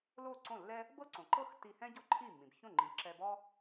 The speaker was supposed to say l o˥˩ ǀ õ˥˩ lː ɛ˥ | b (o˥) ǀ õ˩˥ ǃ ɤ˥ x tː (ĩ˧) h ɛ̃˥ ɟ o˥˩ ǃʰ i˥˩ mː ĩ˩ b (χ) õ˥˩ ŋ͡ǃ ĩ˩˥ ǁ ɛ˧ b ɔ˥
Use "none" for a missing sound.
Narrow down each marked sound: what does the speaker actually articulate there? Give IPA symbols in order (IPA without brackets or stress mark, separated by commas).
ɤ˥, i˧, ç